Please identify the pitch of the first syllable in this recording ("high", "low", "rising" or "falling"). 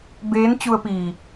rising